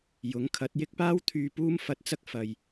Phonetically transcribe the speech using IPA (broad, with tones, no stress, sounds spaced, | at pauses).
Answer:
j ʊ˨˥ ŋ kʰ ɐ˨˥ t̚ j ɪ˥ k̚ p aː˥ w t̪ʰ yː˧ p uː˥ m f ɐ˧ t̚ t͡s ɐ˥ k̚ f ɐ˨ j